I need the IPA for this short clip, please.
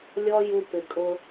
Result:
lʲɔ˦ ju˧ pɪ˨kʼʊ˧

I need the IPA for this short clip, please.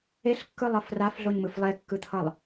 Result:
eɬkːɯlˠʌ frafɮoɲmɯf lˠekːɯt̪ʰʌlˠ

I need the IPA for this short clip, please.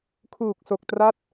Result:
kʰuː˨˩k̚so˨˩k̚tra˦˥t̚

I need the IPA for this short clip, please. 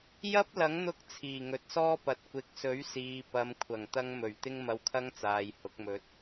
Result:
jɐ˥p̚lɐ˨˥ŋn̪ʊ˧k̚ t͡sʰiː˨˩ŋɵ˨t̚sɔː˥pɐ˨t̚ kʷɪ˨k̚sɵ˨˥ɥ siː˨ pɐ˨m kʷʰɐ˨˩ŋt̪ɐ˧ŋmɵ˨˩ɥ t̪ɪ˥ŋmɐ˧wkʰɐ˥ŋt͡saː˨j hʊ˨˥k̚mɵ˨˥t̚

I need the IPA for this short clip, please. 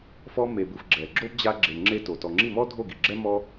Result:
fɔ˧me˨bɯ˨f ɡ͡ǁɛ˨ɡ͡ǁo˦b d͡ʑa˧ɡ͡ǁe˨ ŋ͡ǁe˧ to˨ tɔ˨ŋ͡ǁi˦˨mɔ˦dʱo˦˨ ɡi˨ɡ͡ǁɛ˦ mɔ˦

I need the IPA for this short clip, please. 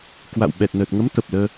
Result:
kwa̰˧˨w ɓɛ˨˩t̚nəː˨˩t̚ŋə˨˦m t̪ə˨˩p̚ləː˧

